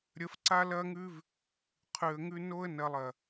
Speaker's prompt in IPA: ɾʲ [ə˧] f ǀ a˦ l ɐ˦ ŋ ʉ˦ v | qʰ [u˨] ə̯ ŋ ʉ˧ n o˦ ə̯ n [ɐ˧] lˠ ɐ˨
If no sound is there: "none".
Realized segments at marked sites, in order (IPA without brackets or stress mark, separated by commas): ə˧, ʉ˨, ɐ˧